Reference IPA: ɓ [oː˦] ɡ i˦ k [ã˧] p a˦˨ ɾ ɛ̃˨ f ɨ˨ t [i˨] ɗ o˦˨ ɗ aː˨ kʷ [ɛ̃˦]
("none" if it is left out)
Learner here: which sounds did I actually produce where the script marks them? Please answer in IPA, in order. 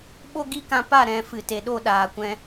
o˦, ã˧, e˨, ɛ̃˧

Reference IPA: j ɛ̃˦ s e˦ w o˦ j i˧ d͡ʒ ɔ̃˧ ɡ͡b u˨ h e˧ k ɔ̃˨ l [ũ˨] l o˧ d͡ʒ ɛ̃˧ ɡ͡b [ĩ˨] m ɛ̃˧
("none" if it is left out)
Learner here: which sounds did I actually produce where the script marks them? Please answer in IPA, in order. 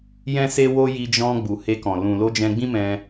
ũ˨, ĩ˦

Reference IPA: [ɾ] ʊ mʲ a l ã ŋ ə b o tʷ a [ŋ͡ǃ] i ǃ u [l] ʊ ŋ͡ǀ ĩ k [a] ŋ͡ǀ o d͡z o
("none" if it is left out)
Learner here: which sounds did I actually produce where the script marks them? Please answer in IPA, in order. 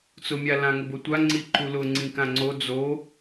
t͡s, ŋ͡ǀ, l, ã

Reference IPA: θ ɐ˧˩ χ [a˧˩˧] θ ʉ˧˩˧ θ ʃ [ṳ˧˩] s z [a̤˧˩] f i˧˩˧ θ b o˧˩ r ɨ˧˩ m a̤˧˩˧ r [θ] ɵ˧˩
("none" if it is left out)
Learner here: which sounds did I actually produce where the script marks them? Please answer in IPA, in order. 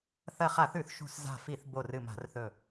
a˧˩˧, ṳ˧˩, a̤˧˩, θ

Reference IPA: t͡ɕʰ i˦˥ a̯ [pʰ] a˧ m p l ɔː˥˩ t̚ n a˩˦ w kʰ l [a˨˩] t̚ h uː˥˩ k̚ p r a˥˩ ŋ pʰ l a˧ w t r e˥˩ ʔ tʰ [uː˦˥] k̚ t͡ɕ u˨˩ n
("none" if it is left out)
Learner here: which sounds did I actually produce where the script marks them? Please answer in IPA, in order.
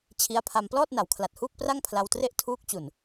pʰ, a˨˩, uː˦˥

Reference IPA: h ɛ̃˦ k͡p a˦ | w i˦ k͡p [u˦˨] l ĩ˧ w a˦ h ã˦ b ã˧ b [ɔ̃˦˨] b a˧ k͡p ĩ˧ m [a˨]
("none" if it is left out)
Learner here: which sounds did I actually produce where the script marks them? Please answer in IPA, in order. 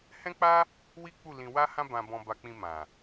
u˦˨, ɔ̃˧, ã˨

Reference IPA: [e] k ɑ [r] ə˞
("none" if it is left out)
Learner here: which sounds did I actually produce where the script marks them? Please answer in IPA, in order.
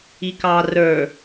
i, r

